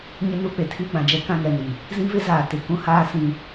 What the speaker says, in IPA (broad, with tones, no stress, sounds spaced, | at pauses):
ɲ ɪ˦ n u˦ k͡p e˨ tʰ iː˦ ɡ͡b ã˨ d͡ʒ ɛ˦ k ã˦ ŋ ɛ˨ n i˨ | z ĩ˦ v ɪ˦ z aː˨ t ɪ˨ k ũ˦ h aː˦ s ĩ˦